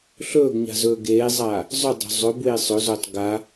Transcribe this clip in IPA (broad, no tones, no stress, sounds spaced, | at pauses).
ɬ ɵː ɡ ɲ a̤ z ɵː ɡ eː zˤ aː | zˤ ʉ dˤ o̤ zˤ ɵ b w e sˤ ɵ z o tˤ ɡ a